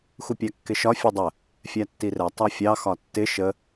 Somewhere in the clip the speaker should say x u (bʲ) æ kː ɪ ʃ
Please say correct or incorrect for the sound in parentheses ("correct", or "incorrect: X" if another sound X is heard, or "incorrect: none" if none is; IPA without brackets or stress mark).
incorrect: pʲ